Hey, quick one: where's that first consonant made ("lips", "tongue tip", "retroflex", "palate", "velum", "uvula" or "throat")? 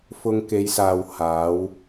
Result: lips